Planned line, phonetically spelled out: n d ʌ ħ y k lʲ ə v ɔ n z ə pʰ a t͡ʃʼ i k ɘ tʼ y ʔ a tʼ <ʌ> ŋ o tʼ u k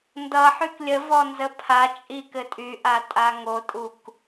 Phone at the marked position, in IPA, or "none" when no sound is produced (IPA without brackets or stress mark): a